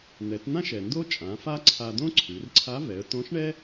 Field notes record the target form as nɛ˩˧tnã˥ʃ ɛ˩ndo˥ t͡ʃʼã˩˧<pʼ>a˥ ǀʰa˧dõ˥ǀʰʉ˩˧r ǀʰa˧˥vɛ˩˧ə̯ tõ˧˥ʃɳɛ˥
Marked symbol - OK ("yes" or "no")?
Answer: no